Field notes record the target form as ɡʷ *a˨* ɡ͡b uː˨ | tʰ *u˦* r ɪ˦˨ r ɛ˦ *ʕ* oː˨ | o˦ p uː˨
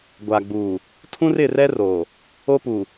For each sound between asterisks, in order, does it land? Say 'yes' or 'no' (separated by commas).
yes, no, no